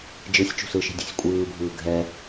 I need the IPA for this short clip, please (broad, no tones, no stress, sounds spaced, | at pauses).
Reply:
d͡ʒ ɯ sʲ t͡ʃ ṳ s ɯ ʃ i̤ dʲ e̤ sʲ kʷʼ ɯː bʱ ɯː ɡʱ ɛ